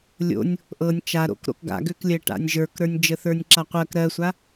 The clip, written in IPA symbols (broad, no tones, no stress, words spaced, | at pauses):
lʲo̰nʲ | ʔɤnʲ t͡ʃaɾo̰k ɾo̰kɡa̰ɡøklʲɜ ʈa̰nʲʒə˞kɾə˞nʲ d͡ʒəθə˞nʲǁaqʷɜk ɾɜsʷa